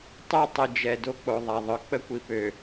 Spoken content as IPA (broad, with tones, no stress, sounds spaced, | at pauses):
tˤ ø˦ tˤ ə˨ d͡ʒ ɛ˨ d o˦ k͡p o˨ ðˤ a˨ ðˤ œ˨ k͡p ə˦ kʷ i˨ p ø˨